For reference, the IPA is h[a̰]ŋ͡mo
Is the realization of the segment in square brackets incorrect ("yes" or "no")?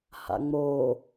no